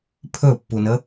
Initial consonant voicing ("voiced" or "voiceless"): voiceless